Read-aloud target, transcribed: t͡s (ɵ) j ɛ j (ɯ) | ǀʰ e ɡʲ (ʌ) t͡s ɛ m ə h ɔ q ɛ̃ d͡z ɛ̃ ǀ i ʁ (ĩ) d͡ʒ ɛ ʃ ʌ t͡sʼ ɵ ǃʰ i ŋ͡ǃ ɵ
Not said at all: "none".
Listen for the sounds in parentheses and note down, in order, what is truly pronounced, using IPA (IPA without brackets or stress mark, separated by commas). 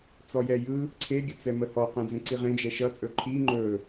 ɔ, ɯ, ə, ẽ